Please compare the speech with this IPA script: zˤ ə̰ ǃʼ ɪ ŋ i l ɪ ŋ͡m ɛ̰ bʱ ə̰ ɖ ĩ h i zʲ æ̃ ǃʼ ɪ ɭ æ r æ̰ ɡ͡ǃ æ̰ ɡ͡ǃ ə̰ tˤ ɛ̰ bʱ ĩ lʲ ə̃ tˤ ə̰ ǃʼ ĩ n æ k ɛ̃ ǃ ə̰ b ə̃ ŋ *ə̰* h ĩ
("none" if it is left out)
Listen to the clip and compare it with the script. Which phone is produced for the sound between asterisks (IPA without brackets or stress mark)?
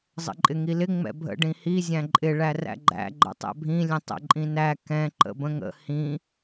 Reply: ə̰